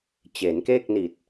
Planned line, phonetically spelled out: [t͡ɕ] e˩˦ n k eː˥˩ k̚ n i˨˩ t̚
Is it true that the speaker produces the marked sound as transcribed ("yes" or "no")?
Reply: yes